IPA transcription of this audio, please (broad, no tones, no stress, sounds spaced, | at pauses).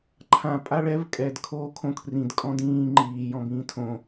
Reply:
ǃʰ ã pʼ a ɭ ɛ v kʼ ɛ d kʰ oː kʰ õ kʰ r ĩ d kʼ ɔ̃ d ĩː ŋ͡ǃ iː j ɔ̃ b ĩː tʰ õ